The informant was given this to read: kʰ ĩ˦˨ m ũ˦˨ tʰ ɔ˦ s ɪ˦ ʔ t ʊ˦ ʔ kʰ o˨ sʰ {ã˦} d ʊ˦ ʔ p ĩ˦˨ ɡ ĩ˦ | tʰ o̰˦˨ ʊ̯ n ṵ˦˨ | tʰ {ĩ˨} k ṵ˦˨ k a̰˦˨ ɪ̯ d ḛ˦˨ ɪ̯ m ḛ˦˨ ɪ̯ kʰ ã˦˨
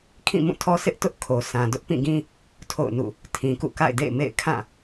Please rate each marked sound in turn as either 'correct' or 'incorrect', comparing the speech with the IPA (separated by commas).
incorrect, correct